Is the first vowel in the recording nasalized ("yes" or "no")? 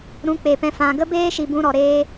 yes